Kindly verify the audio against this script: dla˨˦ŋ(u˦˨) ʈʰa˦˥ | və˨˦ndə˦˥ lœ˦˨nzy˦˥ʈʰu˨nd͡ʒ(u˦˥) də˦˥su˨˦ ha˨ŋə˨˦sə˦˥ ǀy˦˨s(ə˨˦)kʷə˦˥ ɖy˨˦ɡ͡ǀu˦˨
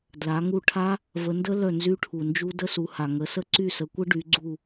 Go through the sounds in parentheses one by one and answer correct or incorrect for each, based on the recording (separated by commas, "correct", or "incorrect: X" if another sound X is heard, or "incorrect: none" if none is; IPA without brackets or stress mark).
correct, correct, correct